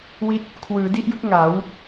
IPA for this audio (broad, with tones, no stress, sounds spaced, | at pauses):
w i˥˩ t̚ | kʰ w ɯː˩˦ d i˥˩ ʔ j ɯ˦˥ k̚ ŋ a˩˦ w